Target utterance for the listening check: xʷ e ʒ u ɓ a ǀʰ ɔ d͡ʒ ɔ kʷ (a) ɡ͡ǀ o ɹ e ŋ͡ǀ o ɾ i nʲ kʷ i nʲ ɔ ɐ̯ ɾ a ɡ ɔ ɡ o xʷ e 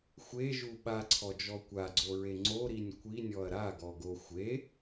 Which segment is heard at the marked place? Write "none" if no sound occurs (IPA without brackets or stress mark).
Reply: a